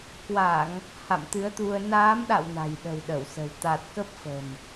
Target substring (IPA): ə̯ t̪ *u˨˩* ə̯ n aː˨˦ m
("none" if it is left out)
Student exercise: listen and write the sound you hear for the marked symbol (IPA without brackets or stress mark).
u˧